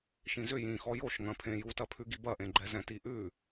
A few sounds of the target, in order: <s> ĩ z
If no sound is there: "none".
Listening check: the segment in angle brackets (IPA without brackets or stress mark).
ʃ